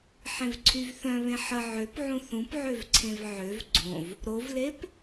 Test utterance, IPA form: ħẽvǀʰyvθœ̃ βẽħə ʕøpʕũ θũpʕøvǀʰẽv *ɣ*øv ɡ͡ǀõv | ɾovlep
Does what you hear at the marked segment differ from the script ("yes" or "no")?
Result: yes